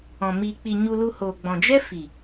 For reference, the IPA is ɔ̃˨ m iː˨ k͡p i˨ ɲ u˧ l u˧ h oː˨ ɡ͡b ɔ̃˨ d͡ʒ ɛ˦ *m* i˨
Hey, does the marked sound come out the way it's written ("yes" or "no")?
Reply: no